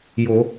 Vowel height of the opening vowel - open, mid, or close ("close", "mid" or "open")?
mid